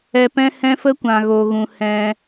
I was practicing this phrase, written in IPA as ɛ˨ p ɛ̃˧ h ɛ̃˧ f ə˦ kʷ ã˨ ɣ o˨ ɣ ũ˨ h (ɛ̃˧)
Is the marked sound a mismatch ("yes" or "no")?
no